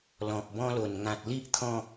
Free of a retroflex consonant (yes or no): yes